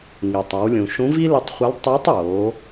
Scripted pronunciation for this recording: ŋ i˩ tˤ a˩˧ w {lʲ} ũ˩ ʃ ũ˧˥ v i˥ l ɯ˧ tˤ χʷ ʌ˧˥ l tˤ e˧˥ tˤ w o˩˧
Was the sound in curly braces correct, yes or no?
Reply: yes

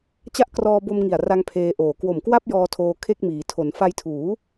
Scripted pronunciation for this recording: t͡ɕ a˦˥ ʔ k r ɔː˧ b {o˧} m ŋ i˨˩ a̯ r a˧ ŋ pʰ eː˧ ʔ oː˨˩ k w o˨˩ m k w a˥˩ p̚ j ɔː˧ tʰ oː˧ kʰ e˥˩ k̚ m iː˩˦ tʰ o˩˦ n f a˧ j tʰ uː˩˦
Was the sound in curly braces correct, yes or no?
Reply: yes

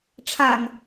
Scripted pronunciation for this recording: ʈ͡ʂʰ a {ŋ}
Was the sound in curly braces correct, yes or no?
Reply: yes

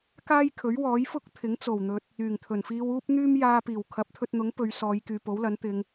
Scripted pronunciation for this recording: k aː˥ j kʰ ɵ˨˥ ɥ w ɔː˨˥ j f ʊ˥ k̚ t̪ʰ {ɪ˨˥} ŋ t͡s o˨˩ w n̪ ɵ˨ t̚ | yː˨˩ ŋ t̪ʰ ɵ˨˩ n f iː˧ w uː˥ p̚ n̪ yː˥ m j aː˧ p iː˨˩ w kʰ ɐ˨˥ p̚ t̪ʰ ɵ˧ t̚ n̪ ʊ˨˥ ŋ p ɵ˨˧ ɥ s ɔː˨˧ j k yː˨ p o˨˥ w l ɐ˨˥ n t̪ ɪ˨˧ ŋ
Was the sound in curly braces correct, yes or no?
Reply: yes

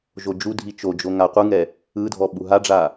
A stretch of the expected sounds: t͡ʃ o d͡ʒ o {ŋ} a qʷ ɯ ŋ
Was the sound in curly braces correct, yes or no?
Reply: yes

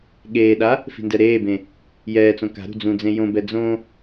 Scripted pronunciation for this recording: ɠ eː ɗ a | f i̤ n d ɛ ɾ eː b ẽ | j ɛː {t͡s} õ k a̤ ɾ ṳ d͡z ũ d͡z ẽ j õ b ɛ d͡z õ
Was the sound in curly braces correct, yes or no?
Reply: yes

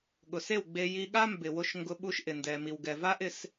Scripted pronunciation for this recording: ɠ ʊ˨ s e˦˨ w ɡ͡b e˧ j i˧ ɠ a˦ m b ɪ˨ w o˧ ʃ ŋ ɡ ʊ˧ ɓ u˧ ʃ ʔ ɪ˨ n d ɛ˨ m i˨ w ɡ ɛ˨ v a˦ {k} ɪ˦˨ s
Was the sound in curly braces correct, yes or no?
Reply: no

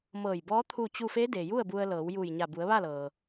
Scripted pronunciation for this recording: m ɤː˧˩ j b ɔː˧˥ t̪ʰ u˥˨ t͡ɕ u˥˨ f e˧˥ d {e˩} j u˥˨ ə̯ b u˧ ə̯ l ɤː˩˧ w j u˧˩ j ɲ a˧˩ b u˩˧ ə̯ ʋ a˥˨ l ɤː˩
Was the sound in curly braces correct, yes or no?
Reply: yes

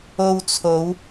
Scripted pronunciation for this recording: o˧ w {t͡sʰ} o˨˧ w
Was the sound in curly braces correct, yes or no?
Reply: yes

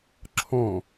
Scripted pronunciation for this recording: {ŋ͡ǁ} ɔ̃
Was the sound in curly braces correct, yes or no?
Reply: no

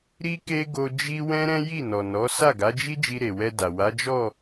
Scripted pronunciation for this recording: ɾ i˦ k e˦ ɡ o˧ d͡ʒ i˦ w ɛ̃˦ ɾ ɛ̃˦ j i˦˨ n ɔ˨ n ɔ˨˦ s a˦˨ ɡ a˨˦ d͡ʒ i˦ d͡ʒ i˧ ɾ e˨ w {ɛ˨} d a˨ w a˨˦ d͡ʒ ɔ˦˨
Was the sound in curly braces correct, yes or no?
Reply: no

